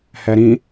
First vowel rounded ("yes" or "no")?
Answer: no